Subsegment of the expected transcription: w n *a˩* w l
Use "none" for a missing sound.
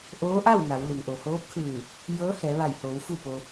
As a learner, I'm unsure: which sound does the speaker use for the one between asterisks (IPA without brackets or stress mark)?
a˩˧